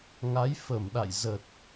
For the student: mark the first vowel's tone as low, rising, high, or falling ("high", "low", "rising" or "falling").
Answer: rising